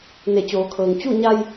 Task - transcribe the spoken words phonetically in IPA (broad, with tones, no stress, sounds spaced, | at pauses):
n e˧˩ t͡ɕ oː˩˧ kʰ ɤː˩ ŋ t͡ɕ u˥˨ ɲ a˧ j